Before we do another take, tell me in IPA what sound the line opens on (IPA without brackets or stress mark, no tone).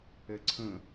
ɛ